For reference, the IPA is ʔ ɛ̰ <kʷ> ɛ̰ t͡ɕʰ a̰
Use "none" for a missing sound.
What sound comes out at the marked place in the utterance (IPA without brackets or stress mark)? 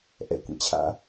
kʷ